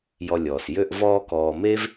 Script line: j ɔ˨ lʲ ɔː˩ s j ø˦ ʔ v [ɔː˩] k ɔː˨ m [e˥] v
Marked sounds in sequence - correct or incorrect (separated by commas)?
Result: incorrect, correct